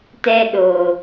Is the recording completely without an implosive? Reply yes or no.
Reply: no